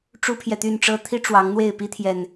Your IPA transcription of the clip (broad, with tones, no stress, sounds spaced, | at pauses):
ʈ͡ʂ u˦ pʰ j ɛ˨ t̪ y˥˨ n ʈ͡ʂ ɤ˦ t̪ʰ i˦ ʈ͡ʂ w ɑ˨˦ ŋ n̪ w e˥˨ ɪ̯ p i˦ t̪ʰ j ɛ˨˩ n